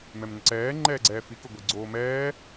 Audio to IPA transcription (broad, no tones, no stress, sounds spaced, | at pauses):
m ɛ m n ə ǀ ɛː ŋ͡ǃ ɛː ɡ͡ǀ ɛː f i k ʊ ɡʷ i ɡ͡ǀ oː m ɛː